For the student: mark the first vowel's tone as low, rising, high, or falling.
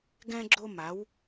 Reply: high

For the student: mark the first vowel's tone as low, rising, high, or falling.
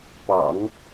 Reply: low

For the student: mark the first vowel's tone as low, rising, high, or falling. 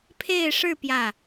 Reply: falling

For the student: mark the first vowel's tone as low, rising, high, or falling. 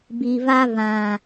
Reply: low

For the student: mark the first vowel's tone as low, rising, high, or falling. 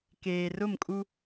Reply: low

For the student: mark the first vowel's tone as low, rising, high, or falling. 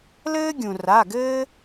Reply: high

